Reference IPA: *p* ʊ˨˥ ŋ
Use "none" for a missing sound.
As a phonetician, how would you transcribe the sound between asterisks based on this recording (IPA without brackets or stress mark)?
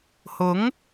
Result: h